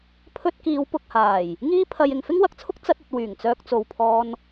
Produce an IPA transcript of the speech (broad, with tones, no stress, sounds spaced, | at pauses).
pʰ ɵ˧ t̚ k iː˨˧ w p ʊ˨ k̚ h aː˨˩ j | ŋ iː˥ pʰ ɐ˧ j ɪ˨ ŋ f ɪ˥ ŋ w ɐ˨˥ k̚ t͡sʰ ʊ˥ k̚ t͡s ɐ˧ t̚ ɐ˨ t̚ w yː˨˩ ŋ t͡s œː˧ k̚ t͡s o˨ w pʰ ɔː˧ n